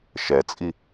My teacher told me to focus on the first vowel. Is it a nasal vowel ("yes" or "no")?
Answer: no